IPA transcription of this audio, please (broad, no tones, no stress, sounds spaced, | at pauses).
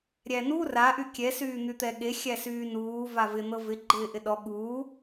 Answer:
ɾʲ æ n u r a ʔ y kʲ ɛ s yː n̪ y t̪ ɛ ɠ e xʲ æ s yː n uː v a v ɪ n̪ ɤ v ɪ ɡ͡ǃ ɪː ʔ ɪ ɗ ɔ ɠ uː